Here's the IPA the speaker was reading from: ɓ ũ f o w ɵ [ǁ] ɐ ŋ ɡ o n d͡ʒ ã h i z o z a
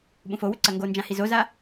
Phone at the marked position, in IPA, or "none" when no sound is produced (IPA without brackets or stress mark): ǀ